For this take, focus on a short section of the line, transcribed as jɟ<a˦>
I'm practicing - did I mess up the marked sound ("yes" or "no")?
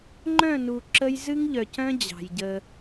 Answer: yes